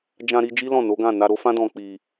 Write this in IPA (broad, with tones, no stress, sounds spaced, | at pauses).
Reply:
d͡ʒ ã˧ ɾ i˧ d͡ʒ i˦ l ɔ̃˦˨ n o˨˦ ɡ ã˦˨ n a˧ ɾ o˦ f ã˦ d ɔ̃˧ k͡p i˧